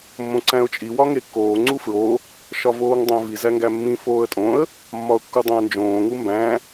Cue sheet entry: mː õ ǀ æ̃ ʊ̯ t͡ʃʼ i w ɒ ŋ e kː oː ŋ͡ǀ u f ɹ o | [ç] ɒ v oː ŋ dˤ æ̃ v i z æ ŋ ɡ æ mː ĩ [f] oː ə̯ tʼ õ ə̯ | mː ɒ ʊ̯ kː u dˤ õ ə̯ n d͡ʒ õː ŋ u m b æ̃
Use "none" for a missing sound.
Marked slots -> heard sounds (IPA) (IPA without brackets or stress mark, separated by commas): ʃ, f